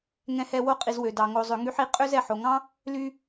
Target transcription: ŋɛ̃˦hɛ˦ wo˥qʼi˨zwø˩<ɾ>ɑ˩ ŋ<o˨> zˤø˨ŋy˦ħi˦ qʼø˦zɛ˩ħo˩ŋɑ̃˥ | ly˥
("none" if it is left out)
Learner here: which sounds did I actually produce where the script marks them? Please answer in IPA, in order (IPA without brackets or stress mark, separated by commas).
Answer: d, o˨